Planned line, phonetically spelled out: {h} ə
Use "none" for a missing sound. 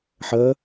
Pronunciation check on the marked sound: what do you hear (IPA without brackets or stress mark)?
ħ